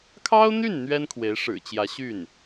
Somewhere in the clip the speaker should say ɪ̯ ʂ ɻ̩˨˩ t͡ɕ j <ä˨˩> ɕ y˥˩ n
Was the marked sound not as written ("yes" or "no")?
yes